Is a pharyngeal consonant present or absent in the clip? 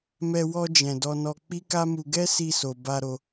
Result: absent